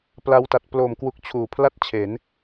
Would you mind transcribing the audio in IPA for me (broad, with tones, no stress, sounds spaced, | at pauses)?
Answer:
p l a˧ w t a˨˩ t̚ p l o˨˩ m k w u˦˥ k̚ t͡ɕʰ uː˨˩ pʰ l a˥˩ t̚ t͡ɕʰ e˩˦ n